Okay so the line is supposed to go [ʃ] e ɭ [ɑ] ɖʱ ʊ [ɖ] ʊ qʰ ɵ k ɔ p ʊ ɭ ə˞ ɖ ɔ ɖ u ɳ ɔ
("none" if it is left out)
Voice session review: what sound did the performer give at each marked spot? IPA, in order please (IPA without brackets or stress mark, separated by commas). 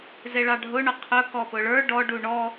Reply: z, ɑ, ɳ